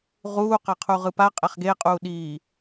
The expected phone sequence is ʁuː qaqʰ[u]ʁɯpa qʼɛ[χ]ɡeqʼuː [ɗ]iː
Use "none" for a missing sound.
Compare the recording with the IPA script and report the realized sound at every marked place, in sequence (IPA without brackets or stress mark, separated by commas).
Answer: u, χ, ɗ